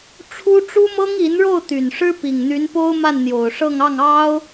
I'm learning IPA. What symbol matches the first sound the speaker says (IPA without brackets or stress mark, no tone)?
ʈ͡ʂʰ